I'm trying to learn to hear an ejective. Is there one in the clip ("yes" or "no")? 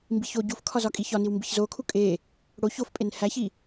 yes